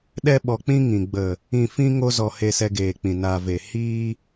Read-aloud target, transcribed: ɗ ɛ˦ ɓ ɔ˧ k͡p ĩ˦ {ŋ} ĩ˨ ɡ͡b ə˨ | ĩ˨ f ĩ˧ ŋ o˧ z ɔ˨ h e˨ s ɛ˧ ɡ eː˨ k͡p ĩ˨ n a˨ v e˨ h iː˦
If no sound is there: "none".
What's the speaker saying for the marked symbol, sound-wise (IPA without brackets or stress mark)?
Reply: ŋ